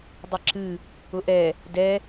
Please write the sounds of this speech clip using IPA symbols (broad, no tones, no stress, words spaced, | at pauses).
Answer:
dˤəǁɨ | ʊʔɛ | dɛ